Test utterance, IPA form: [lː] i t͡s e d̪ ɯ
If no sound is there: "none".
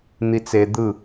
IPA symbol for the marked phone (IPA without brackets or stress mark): n̪